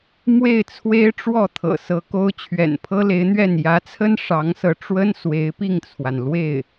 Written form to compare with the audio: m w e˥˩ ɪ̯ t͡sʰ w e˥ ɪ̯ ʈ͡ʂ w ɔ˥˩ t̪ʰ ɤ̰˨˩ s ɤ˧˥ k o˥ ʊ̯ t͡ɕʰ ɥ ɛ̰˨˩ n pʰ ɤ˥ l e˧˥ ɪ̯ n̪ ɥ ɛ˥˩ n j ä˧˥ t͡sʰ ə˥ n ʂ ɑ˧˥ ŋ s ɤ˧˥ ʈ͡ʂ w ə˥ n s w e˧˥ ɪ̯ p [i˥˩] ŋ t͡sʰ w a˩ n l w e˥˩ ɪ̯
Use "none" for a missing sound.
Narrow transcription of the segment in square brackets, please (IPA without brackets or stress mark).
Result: i˥˩